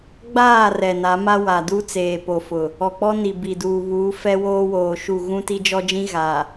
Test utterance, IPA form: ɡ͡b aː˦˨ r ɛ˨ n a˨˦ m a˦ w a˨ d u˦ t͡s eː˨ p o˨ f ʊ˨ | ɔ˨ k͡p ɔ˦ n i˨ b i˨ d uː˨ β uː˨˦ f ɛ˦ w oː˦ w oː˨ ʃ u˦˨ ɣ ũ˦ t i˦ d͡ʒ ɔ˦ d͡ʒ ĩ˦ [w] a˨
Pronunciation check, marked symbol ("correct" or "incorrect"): incorrect